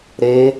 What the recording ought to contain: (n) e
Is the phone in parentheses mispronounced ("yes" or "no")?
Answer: yes